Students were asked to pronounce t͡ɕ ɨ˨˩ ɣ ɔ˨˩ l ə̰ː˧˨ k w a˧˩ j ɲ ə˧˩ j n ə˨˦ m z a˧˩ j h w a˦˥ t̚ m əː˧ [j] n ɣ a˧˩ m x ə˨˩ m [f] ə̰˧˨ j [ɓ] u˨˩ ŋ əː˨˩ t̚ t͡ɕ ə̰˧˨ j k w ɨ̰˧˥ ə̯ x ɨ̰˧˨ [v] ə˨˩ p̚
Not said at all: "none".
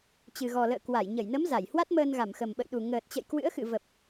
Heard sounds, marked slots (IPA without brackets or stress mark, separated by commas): none, ɓ, ɗ, v